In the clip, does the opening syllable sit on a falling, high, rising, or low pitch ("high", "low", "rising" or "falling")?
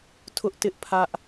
high